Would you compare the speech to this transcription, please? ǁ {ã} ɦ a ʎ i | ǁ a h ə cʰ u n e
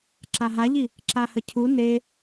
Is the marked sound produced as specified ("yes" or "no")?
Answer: no